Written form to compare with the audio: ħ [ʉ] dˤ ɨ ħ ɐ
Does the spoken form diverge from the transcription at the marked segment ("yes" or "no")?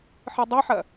yes